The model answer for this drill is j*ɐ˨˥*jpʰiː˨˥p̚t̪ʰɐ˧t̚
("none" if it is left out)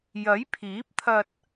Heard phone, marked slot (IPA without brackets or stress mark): ɐ˨˥